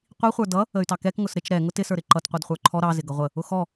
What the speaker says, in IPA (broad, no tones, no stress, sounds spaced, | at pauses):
qʷ i χʷ ə˞ d ʌ | ə y̯ t ɑ k ɛ k ŋ ʊ s ɾ ɪ t͡ʃ ɾ ɛ ŋ ʊ t ɪ s ə˞ ɾ ɪ ǃ ʌ t qʷ ə˞ d χʷ ə˞ ǃʰ ɔ ɾ ɑ z ɪ ɡ ʌ ʁʷ ə | ʊ x ɔ